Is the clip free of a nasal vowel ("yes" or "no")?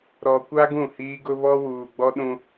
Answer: no